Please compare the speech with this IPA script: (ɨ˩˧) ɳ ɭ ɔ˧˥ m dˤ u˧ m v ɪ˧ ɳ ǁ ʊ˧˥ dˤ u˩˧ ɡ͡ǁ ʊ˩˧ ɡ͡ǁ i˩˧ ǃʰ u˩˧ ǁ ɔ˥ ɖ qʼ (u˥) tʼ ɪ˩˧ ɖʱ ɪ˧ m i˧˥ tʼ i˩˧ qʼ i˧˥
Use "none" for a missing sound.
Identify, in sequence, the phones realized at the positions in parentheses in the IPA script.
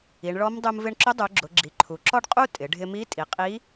i˩˧, u˥

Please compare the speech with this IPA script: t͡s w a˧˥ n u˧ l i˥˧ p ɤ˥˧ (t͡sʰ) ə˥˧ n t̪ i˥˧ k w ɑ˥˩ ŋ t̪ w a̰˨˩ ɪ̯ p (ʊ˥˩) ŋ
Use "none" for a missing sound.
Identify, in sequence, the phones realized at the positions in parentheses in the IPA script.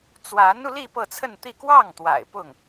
t͡sʰ, ʊ˥˩

